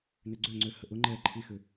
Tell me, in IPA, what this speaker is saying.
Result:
nøɡ͡ǀøŋ͡ǀø həʔʊŋ͡ǃɛː ǃʰixʏ

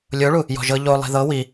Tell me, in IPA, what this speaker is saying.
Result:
lʲoɭu | jɔ̤ʒɤ ʎo lˠi̤ðɤ wi

